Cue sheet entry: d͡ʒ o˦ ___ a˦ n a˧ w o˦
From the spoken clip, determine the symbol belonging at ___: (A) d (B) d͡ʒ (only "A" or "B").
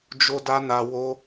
A